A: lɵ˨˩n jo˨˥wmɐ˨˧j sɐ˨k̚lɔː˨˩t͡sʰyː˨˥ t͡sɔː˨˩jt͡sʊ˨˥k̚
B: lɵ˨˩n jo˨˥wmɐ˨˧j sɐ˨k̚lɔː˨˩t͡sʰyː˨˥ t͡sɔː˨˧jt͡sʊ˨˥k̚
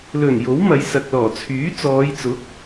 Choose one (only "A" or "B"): B